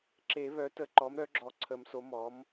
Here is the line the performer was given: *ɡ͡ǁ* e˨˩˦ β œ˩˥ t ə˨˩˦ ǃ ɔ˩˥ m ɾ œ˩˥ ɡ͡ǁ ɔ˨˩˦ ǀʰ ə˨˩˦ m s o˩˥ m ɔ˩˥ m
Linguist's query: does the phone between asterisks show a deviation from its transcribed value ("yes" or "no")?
yes